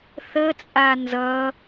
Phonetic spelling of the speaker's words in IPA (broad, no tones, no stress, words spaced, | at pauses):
θət͡sʼa nzʌ